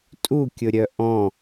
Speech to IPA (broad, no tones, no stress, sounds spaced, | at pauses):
tʼ u kʲ ʊ ɾʲ œ ʔ ɔ̃